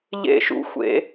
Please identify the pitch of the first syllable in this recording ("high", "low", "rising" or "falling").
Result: high